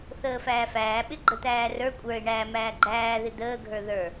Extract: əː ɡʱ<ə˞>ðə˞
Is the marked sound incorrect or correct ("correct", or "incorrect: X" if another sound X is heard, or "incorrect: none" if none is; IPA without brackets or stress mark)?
correct